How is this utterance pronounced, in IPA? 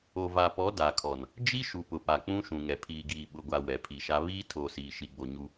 o˨ va˨pɔ˨˦ da˨kʰɔ˨n | d͡ʒi˦ ʃu˨pʊ˨pa˨ k͡pũ˦ʃũ˨ŋɛ˨ pʰiː˨ɡiː˨ ɓʊ˨ɡʷa˨ wɛ˨pʰi˨ʃa˦ βiː˦ tʰoː˨siː˨ʃi˨ɡ͡bo˨ ɲu˦

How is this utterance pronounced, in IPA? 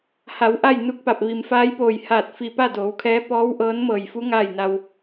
ha˩˧w ʔa˥˨jnu˧˥k̚pa˧˩p̚ ʋi˩mfaː˧˥jpoː˧˩jhaː˧˩t̚ fi˧˩pa˥˨doː˩˧wkʰɛː˧˥ pɔː˧˥wʔɤː˧˥n mɤː˧˩jfu˧˥ ŋaː˥˨jna˧w

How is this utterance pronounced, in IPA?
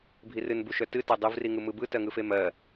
bʱirɨnbuʃœ tɨtɜ dˤɯvriŋɯ mɯbɯ tɜŋɯfemɜ

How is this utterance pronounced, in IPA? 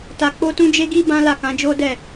ta˧k͡po˦tũ˦ d͡ʒe˦ɡi˦ bã˦la˦˨kã˨˦d͡ʒo˦ dɛ˦˨

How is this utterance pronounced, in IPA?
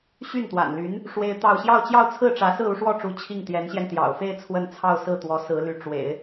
ɕy˥˩nt̪wa̰˨˩nly˧˥n | ʂwe˥ɪ̯t̪ɑ˥˧ʊ̯ ɕjɑ˥˧ʊ̯t͡ɕjɑ˥˧ʊ̯t͡sʰɹ̩˥˩ʈ͡ʂä˧˥ sɹ̩˥˧u˥˧ʂwɔ˥˩ʈ͡ʂu˧˥ t͡ɕʰi˥˩ŋt̪jɛ˧˥nɕjɛ˧n t̪jɑ̰˨˩ʊ̯fe˥˧ɪ̯ t͡sʰwə˥˧nt͡sʰɑ˥˧ʊ̯sɹ̩˥˩t̪wɔ˧˥ sɹ̩˧˥ly˧˥ ʈ͡ʂwḛ˨˩˦ɪ̯

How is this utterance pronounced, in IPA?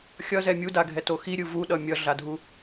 xʲʌzɛ mʲudaɡʱɛto xiɾʲɯ vuɗʌ mʲʌɮadʱu

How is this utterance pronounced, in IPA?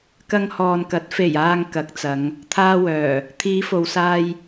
kɐ˧ŋhɔː˨nkɐ˨˥t̚ fe˨˩jaː˨ŋ kɐ˨˥k̚t͡sɐ˨˧ŋ | t̪ʰaː˧wœː˨˩ | t̪ʰiː˨˧fo˨wsaː˧j

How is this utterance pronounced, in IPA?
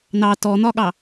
nɑ tɔn̪ɒɠɑ

